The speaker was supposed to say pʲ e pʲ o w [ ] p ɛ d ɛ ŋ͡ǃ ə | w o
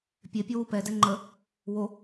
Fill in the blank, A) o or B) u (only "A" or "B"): B